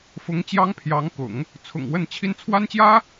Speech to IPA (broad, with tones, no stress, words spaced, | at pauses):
fʊ˧˥ŋt͡ɕjɑ˥ŋpʰjɑ˧˥ŋkʊ̰˨˩˦ŋ | t͡sʰʊ̰˨˩ŋwə˥˧nt͡ɕʰi˥˩n t͡sʰwa˥nt͡ɕjä˥